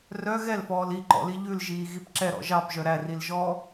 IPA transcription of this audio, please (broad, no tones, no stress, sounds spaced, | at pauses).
r œ ɣ ɛ l f ɔː l i ǃ ɔ̰ l i ʎ ʉ l ʒ iː ɣ i p ǁ ɛ ɾ ɔ̰ ʒ ɑ p ʒ œ ɾ æ r i l ʒ ɔː